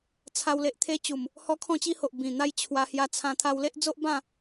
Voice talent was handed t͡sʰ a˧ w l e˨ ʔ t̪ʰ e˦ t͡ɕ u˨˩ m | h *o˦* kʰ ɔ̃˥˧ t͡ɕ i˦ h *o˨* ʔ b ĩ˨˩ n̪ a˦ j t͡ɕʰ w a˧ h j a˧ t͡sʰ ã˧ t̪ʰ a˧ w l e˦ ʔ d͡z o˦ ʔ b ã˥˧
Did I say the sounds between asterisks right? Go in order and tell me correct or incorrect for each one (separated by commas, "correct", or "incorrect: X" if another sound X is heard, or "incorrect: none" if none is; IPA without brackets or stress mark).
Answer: incorrect: ɔ˦, correct